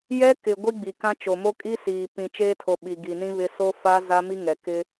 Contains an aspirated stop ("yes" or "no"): yes